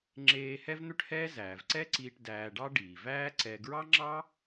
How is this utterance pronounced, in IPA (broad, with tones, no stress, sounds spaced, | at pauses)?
ŋ͡ǁ eː˧ h ɛ˥ v n̪ ø˥ ʈ h ɛː˥ z æː˩ v ǀ ɛ˥ ǀ iː˧ ʈ d æː˧ ɖ ɑ˥ ɖ iː˩ v æː˥ ǀ ɛ˧ ɡ ɹ ɑ˥ ŋ͡ǁ ɑ˥